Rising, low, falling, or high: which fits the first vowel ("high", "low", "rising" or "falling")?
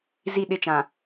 falling